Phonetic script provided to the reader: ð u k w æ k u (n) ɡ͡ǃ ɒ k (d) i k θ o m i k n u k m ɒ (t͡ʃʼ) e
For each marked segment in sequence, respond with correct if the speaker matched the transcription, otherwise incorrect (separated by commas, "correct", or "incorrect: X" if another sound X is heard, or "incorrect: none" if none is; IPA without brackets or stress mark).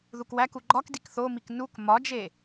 incorrect: none, correct, incorrect: d͡ʒ